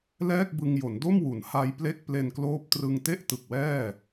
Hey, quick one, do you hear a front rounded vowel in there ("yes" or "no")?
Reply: no